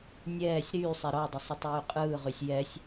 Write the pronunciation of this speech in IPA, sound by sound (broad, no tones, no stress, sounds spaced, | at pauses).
nʲ ɛː sʲ ɾ yː sˤ ɛ ɾ ɔ dˤ ʏ sˤ ʏ tˤ yː qʼ ɯː ʁ y sʲ j ɛ sʲ